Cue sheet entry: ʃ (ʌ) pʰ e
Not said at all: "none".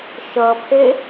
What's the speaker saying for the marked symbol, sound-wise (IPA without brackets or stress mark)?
ʌ